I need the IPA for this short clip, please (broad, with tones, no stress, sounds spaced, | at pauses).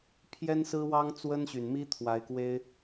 pʰ j ɛ˥ n s ɹ̩˥ w ɑ˥ ŋ t͡s w ə˥ n ɕ y˨˩ n m i˥ t̪ʰ w a˧˥ ɪ̯ k w e˥ ɪ̯